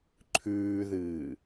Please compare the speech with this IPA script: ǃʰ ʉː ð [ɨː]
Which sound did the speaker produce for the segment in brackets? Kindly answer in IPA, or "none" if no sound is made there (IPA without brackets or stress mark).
ɨː